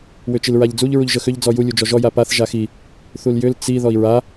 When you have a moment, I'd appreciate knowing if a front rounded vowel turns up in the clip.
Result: yes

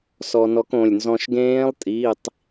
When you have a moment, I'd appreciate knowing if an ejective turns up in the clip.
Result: yes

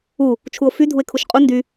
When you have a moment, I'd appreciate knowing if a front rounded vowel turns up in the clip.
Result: yes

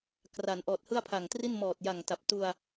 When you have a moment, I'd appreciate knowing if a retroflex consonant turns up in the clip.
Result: no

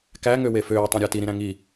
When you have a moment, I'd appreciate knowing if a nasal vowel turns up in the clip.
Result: yes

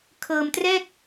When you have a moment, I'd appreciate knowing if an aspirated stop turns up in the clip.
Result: yes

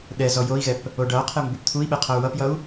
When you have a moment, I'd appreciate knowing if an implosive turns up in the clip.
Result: yes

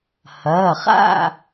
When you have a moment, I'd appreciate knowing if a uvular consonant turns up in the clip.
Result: yes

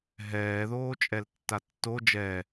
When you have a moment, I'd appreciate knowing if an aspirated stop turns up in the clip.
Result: no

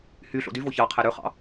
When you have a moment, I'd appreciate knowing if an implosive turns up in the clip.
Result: no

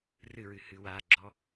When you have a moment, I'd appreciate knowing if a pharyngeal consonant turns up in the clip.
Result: no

